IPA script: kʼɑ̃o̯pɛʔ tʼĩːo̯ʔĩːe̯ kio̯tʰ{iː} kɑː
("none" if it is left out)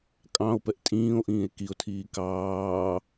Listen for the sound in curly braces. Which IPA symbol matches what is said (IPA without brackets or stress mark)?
iː